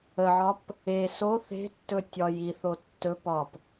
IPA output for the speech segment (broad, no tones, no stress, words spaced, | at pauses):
əʕɒp | e so θe̤tːɵ tʲɒjiθo tːɵpɒp